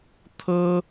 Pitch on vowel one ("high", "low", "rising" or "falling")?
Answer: high